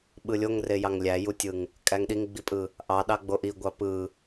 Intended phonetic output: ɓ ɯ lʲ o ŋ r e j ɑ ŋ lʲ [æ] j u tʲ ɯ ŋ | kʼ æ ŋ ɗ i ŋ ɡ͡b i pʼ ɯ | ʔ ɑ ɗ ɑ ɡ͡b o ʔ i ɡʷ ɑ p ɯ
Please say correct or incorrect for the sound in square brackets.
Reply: correct